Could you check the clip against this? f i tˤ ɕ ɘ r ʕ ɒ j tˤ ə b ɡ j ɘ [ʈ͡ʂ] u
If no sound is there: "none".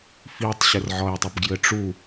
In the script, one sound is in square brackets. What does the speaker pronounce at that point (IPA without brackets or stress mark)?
ʈ͡ʂ